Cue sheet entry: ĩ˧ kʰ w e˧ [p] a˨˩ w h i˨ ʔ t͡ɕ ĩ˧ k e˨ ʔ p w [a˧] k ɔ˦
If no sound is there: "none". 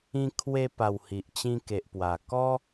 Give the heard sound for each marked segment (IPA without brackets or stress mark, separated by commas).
p, a˨˩